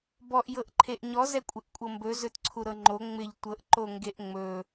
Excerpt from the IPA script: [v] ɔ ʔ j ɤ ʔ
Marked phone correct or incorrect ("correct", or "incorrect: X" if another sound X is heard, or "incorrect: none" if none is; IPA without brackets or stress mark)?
incorrect: b